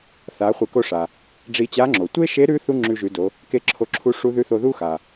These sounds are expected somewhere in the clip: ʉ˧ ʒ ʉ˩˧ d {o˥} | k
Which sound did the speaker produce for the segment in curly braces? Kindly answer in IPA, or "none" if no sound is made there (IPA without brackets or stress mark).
o˩˧